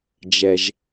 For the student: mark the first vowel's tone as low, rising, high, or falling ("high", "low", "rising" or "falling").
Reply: low